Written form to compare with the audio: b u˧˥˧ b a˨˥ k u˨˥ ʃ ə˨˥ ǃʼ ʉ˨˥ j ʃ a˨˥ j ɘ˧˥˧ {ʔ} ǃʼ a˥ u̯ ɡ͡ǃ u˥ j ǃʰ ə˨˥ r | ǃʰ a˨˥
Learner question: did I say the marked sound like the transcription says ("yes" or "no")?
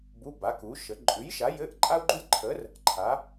yes